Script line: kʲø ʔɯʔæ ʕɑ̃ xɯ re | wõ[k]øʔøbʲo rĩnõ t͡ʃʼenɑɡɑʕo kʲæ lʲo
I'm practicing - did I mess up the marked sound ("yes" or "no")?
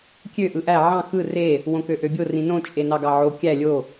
no